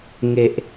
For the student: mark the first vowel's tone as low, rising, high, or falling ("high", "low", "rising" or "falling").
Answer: low